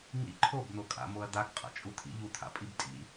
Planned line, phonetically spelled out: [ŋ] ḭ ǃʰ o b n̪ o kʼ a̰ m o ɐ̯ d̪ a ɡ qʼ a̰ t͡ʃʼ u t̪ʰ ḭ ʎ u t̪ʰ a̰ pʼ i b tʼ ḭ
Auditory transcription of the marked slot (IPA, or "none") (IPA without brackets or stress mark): ŋ